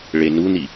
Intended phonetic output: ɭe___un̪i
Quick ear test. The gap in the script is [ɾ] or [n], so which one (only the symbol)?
n